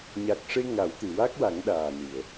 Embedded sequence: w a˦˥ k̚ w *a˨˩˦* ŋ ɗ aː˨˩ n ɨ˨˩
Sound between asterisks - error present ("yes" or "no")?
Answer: no